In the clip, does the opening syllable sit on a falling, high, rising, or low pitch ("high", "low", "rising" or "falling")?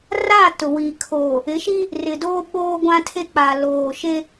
falling